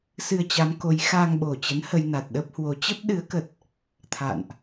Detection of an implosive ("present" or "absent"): present